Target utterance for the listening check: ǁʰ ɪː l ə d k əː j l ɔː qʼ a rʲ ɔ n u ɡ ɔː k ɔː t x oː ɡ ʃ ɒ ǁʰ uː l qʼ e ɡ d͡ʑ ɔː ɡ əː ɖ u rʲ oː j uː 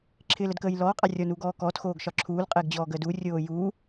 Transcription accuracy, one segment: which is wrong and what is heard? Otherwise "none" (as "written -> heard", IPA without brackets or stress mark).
ɖ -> d